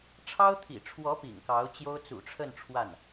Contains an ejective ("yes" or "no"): no